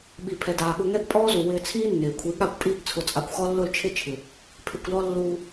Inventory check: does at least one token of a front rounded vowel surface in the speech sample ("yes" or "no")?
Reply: no